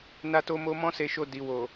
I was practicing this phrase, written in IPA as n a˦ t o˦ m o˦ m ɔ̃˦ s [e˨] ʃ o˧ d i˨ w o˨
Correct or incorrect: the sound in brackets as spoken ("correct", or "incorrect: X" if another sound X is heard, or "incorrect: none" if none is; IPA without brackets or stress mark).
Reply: incorrect: e˧